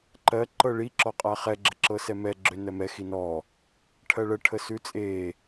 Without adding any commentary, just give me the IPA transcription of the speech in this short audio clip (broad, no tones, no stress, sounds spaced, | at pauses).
ǃ ɜ ǃ ɤ ɭ i ǁ ɔ qʼ a χ ɛ ɡ͡ǁ ə ǁ ɤ s ɛ m ɛ ɡ͡ǁ ø n ɜ m ɛ x i n ɔ | ʈʰ ɜ ɭ ə ʈʰ ə s ʉ t͡sʼ e